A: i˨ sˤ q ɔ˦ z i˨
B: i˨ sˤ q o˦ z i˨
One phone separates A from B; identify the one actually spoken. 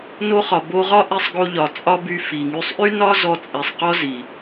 A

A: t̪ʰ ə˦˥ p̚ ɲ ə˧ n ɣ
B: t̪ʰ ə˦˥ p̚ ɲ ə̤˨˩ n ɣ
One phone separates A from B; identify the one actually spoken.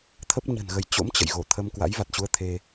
B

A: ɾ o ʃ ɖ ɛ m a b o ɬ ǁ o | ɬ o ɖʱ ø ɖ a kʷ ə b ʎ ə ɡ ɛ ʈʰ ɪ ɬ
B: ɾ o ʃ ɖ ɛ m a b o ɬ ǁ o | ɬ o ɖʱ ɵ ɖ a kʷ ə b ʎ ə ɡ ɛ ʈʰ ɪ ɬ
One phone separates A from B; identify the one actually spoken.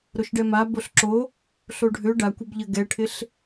A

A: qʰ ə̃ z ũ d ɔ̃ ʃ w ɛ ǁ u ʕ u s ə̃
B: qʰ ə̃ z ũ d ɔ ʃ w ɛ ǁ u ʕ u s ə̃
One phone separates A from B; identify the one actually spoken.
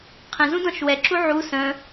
A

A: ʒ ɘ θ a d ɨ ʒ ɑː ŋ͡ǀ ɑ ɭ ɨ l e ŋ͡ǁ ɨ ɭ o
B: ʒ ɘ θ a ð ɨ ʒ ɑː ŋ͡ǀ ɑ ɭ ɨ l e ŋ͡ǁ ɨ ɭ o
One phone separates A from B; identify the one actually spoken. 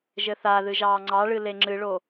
B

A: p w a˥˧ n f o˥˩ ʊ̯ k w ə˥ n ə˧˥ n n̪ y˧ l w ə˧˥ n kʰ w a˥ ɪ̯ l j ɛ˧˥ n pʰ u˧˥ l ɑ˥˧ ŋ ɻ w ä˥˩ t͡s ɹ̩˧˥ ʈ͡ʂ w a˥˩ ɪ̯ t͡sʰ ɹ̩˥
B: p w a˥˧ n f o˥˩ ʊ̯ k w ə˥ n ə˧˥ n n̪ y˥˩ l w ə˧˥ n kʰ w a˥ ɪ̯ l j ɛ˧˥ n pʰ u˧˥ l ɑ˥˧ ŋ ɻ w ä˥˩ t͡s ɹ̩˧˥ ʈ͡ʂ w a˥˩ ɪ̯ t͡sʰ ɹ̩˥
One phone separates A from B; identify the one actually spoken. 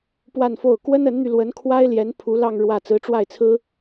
A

